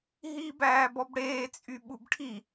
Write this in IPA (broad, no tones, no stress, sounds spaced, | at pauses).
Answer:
ɦ iː b æː b ɔ b ɽ eː t͡sʼ y ɓ u b ʈʰ i